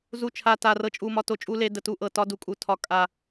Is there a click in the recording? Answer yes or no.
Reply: no